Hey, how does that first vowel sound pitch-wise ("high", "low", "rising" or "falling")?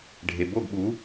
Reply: low